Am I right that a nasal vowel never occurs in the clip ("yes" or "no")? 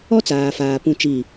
no